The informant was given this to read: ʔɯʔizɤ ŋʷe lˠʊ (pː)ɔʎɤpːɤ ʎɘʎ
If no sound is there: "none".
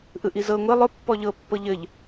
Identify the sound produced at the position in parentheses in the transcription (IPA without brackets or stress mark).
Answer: pː